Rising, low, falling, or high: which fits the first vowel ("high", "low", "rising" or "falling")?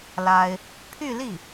high